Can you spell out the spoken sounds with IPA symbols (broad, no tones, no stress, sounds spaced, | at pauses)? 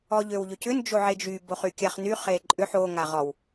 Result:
ɔ ʎ ø w ʎ ø c ʏ n d͡ʒ o ʕ e d͡ʒ y b o χ y kʲ a χ n y χ e ǃʼ ʏ ħ o ŋ a ʁ ɔ w